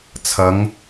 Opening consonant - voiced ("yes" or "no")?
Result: no